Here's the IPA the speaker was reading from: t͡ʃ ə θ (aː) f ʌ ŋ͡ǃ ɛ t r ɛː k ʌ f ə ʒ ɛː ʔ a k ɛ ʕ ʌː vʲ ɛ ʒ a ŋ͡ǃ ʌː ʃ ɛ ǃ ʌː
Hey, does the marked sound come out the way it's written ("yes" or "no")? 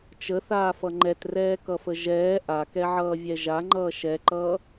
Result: yes